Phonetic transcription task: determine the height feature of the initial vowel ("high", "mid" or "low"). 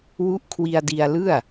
high